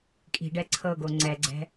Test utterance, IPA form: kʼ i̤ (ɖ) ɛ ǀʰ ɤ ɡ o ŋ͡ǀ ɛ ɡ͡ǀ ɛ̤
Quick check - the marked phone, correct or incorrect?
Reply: correct